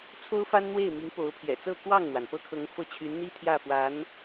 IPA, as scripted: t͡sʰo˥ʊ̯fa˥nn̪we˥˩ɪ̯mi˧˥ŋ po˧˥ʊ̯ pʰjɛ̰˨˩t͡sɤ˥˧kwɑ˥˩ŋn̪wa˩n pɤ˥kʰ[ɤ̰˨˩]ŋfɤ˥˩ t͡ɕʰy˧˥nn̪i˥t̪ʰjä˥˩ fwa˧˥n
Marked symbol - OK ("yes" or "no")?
no